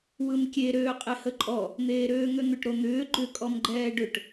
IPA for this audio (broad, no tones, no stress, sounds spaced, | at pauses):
w ɯ m kʲ e ɾ øː qʼ e h ə ǃʼ ɔ | n̪ eː ɾ øː ŋ ø n̪ ʏ ʈ ɾ o n̪ ʏː ɡ͡ǃ ʏ kʼ ɔ m ɡ͡ǃ ɛː ɖ ʏ ʈ